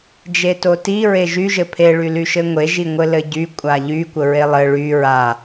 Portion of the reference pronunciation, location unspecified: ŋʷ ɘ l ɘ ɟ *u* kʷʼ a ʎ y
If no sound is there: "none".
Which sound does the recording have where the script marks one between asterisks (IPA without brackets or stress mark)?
y